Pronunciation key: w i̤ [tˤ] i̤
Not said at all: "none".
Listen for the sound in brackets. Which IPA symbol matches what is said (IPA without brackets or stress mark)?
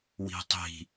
tˤ